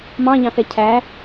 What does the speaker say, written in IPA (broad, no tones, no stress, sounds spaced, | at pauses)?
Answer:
m ɑ̃ ʎ ɑ̃ θ ɛ cʰ æ